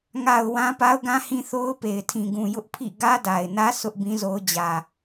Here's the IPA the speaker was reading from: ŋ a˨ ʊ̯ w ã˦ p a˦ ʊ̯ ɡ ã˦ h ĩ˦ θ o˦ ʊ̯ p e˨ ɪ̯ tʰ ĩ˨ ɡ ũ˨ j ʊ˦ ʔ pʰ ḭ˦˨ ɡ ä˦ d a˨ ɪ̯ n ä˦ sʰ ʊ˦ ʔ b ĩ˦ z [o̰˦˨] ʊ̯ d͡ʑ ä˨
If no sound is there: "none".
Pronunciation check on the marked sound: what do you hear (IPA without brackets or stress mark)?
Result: o˦